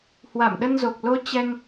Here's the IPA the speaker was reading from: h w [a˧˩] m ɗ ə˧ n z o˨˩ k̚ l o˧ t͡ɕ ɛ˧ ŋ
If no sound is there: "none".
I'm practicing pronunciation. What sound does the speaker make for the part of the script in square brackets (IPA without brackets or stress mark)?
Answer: a˧˩